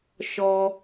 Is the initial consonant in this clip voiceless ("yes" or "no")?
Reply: yes